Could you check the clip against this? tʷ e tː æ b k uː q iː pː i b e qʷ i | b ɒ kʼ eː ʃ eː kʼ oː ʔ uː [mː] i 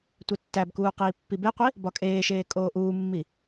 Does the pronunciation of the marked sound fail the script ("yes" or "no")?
no